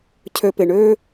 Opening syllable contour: low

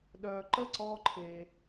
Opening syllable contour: low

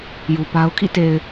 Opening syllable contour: low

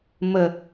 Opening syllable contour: low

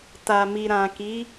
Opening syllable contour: low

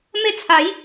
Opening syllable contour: falling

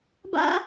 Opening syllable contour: high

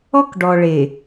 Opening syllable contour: high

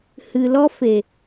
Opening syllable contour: low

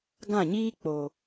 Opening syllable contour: falling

